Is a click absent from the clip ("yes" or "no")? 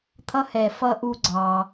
no